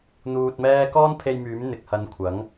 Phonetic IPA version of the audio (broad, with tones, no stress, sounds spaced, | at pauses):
n̪ uː˧ t̚ m ɛː˥ k ɔː˥ n pʰ e˧ j m yː˨˥ m n̪ ɪ˨ k̚ h ɐ˨˧ n kʷʰ ɐ˨˥ ŋ